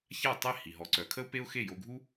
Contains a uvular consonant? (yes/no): no